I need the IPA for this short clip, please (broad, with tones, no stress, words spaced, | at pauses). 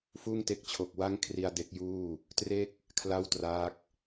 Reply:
fuː˥˩ŋte˥˩k̚ t͡ɕʰo˨˩k̚wa˥˩ŋkʰri˧a̯ de˦˥k̚juː˥˩ | tre˥˩k̚ | kʰla˥˩wtraː˦˥k̚